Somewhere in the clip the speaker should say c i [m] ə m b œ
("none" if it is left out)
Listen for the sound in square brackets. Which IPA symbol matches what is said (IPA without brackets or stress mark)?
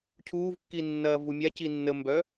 nː